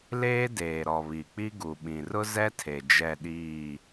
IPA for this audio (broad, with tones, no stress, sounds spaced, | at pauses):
l eː˦ d eː˨ ɾ ɔ˨ β i˨ k͡p i˦ ɡ u˨ ɓ ĩ˨ r ʊ˦ z ɛ˦ tʰ e˨ d͡ʒ ɛ˦˨ ɗ iː˦˨